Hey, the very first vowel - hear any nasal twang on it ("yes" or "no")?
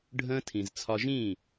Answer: yes